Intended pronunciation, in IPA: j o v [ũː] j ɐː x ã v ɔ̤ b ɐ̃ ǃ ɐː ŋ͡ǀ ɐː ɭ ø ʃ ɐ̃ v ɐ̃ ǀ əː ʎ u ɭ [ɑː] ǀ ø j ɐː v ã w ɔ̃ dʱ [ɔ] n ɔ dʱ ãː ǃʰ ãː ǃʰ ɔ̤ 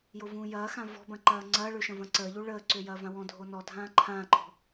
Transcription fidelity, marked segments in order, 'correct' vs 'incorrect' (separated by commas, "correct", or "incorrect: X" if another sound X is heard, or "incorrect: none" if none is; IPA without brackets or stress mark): correct, incorrect: əː, incorrect: o